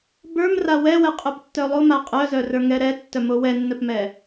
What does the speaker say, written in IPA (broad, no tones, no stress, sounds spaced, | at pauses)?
b ə˞ m r a w ɛ w ɛ qʼ œ p tː œ lˠ o m a qʼ œ z œ r ə˞ ŋ ɛ ɾ ɛ tː œ m o w ɛ nː œ p m ɛ